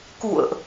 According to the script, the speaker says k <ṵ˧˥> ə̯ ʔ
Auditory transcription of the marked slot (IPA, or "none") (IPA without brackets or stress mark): ṵ˧˨